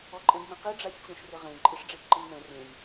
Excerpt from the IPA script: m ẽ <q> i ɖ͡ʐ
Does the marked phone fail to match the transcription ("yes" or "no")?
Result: no